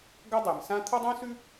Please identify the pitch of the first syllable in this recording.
high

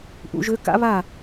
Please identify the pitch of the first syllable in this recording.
rising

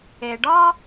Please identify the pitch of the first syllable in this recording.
low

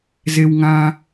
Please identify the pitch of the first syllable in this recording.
low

